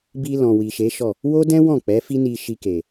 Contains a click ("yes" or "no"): no